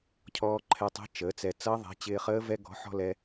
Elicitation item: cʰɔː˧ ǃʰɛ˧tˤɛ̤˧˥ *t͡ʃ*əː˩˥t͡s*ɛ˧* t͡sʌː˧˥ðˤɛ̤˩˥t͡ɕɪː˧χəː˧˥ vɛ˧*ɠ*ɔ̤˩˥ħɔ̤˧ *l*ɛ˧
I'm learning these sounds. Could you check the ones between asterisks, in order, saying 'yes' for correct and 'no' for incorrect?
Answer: yes, yes, no, yes

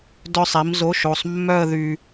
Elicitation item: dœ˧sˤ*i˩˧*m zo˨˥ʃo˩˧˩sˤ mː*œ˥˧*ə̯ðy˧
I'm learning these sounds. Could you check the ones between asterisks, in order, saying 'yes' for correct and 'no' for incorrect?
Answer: yes, yes

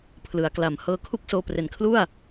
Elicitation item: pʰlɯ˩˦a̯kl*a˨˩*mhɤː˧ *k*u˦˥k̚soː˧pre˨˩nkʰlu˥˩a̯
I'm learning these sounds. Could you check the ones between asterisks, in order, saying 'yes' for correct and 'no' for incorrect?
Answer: yes, no

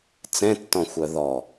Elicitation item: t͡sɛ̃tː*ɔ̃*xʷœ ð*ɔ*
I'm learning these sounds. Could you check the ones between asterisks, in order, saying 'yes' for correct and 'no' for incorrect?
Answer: yes, yes

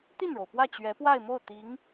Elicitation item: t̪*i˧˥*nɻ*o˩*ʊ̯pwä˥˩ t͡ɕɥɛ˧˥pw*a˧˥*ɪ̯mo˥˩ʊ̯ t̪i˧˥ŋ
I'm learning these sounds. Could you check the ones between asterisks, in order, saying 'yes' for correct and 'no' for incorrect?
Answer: no, yes, no

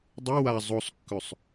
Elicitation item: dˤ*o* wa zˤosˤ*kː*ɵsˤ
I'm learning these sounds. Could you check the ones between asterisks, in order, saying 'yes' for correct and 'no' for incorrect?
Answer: no, yes

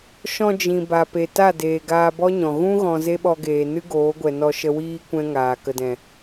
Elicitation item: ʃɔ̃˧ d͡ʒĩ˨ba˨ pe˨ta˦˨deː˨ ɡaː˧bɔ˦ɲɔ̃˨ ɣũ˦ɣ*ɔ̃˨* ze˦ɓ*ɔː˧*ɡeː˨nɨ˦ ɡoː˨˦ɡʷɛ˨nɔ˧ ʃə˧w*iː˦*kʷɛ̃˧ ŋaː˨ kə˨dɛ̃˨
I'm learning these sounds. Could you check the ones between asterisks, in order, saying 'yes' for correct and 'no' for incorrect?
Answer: yes, no, yes

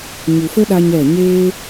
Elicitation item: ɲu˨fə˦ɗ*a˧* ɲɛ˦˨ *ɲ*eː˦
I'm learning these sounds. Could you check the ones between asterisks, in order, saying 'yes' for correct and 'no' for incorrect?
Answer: yes, yes

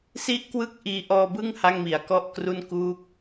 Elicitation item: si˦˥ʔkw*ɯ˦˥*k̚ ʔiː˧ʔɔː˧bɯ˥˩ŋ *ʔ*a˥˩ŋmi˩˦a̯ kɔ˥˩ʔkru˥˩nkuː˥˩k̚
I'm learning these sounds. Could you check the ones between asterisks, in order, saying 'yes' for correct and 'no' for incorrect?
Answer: yes, no

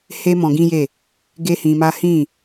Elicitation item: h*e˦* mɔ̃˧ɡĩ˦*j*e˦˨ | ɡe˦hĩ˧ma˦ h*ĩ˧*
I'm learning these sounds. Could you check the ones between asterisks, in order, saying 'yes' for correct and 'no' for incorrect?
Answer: yes, yes, no

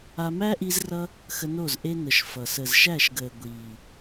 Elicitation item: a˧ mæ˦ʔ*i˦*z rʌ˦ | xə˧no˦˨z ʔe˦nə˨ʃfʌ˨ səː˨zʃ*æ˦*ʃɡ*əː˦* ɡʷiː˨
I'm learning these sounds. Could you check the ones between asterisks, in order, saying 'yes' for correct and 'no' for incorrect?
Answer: no, no, no

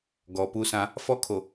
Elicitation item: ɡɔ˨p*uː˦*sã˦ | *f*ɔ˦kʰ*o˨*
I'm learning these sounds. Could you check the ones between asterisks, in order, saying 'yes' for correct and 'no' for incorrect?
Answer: no, yes, yes

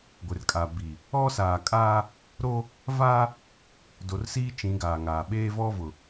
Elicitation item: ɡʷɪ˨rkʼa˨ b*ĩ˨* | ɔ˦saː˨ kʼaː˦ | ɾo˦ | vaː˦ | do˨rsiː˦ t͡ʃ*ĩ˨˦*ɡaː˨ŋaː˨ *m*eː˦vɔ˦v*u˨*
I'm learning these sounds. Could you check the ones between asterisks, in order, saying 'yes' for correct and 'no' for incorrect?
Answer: no, yes, no, no

